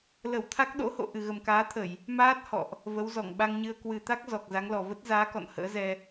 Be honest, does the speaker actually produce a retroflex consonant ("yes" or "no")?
no